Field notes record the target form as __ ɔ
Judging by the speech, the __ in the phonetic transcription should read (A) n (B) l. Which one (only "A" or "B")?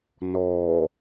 A